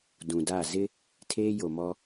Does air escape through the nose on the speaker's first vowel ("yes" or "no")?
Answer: yes